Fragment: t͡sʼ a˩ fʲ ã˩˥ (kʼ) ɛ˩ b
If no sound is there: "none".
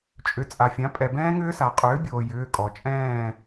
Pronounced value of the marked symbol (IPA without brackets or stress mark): pʼ